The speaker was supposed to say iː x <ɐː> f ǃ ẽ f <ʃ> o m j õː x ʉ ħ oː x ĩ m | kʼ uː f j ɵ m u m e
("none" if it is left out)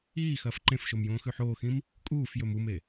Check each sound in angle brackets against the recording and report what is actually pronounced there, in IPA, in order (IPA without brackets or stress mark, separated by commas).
ɐː, ʃ